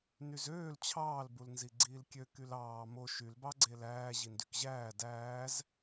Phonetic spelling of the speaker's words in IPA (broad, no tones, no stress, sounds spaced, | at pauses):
n y z øː l t͡ɕʰ ɑː l b u l n z i ɡ͡ǀ iː l kʲ ø k y l ɑː m o ʃ y l b ɑ ɡ͡ǀ e l æː ʑ i n d y k ʑ æː d æː z